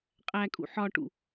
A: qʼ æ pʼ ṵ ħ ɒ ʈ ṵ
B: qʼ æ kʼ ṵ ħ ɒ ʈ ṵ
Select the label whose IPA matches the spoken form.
B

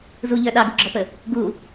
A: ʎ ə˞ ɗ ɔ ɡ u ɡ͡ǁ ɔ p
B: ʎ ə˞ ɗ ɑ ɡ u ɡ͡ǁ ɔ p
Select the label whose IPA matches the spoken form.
B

